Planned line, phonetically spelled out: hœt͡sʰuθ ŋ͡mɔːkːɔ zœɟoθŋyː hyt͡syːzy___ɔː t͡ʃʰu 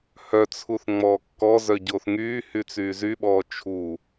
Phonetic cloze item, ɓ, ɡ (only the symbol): ɓ